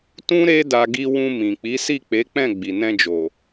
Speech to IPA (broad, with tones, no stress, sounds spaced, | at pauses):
t ũ˦ ɾ e˦ d a˧ ɡ i˧ w ũ˧ m ĩ˨ k͡p i˨˦ s i˦˨ k͡p e˨˦ k͡p ɛ̃˦˨ ɡ͡b i˨ n ɛ̃˧ d͡ʒ o˨